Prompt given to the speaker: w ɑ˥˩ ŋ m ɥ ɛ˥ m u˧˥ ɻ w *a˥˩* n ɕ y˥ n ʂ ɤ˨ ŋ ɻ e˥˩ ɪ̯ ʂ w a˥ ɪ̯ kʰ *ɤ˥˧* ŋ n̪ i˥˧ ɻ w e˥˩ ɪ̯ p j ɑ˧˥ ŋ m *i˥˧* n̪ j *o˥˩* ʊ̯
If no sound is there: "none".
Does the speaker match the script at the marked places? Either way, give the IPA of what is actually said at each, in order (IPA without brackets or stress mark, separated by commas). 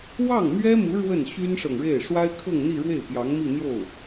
ə˥˩, ɤ˥˧, i˥˧, o˥˩